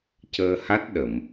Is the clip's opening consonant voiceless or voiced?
voiceless